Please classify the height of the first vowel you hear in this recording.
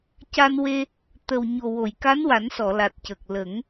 low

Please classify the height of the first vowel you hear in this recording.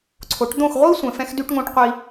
mid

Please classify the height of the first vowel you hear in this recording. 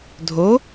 mid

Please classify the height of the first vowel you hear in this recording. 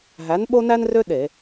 low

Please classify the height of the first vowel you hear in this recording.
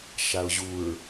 low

